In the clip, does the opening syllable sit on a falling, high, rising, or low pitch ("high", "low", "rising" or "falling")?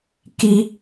high